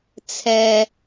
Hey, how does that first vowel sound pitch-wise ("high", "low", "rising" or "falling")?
low